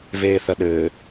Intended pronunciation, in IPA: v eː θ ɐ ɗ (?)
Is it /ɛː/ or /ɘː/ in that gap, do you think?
ɘː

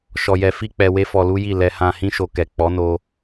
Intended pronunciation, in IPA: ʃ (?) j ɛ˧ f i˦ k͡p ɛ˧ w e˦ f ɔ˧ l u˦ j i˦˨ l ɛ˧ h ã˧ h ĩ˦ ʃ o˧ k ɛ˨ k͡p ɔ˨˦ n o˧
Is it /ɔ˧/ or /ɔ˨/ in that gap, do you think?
ɔ˧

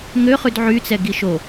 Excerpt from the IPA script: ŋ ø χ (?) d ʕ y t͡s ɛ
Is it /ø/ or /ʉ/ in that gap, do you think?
ʉ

